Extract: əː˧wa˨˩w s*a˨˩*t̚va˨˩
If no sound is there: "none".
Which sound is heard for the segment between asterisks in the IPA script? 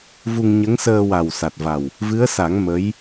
a˨˩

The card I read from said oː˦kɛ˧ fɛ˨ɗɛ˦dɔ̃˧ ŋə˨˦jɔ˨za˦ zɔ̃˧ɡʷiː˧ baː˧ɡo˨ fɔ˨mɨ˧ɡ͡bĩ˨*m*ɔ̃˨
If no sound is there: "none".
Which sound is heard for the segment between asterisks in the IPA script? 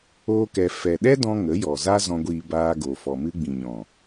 ɲ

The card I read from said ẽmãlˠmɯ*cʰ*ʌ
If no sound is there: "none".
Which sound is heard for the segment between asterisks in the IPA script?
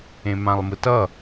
t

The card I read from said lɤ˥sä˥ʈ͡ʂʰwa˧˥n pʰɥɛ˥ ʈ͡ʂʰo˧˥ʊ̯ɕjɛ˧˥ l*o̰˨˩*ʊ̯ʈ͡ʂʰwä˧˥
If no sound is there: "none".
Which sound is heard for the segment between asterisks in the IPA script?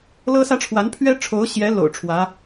o̰˨˩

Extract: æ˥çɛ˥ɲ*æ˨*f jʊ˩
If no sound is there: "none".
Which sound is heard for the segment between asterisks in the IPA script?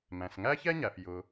æ˩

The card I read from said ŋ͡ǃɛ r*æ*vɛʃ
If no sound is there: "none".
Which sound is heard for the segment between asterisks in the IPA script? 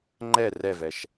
ɛ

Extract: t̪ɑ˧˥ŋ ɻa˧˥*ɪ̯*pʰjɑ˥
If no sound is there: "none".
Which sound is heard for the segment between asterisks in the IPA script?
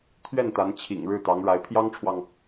ɪ̯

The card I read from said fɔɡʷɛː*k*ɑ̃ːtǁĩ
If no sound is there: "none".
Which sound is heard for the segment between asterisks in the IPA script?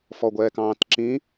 k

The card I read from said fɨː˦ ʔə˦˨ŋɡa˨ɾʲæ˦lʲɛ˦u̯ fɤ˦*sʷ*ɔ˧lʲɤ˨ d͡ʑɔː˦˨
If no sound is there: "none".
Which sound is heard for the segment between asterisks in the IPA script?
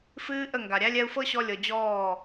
ɕ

